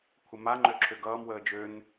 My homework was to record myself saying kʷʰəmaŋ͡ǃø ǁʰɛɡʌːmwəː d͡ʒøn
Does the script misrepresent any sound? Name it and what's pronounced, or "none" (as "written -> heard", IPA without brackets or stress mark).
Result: ɛ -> ø